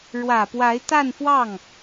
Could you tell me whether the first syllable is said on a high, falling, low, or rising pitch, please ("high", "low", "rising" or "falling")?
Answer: low